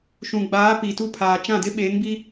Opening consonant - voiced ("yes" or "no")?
no